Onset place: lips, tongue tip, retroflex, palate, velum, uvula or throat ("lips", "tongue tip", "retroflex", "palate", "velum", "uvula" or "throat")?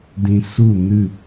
tongue tip